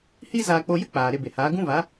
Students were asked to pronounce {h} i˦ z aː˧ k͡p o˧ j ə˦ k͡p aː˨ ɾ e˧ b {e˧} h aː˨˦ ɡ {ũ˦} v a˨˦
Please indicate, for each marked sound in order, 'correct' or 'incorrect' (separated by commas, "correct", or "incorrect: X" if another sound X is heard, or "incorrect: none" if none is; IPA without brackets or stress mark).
correct, incorrect: e˨, correct